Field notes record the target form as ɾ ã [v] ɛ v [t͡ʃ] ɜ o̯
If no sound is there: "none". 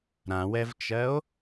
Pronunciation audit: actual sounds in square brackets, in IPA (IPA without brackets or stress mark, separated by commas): w, t͡ʃ